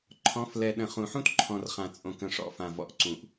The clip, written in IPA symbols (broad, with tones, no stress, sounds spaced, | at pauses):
ǃʰ ɔ̃˨˦ f l ɛ˨ ɗ ə̃˨ χ ũ˨ ħ ũ˦ t ǃʰ ɔ̃˨ r χ ã˨ t͡sʼ õ˨ k ə̃˨ ʂ ɔ̰˨ f ã˨ v ɔ̰˨ ʔ ǀ ũ˨ ʔ